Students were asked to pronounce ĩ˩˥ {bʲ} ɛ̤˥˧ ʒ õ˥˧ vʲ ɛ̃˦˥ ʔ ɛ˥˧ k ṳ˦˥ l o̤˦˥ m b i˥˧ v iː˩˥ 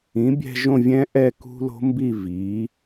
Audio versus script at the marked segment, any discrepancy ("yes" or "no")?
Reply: no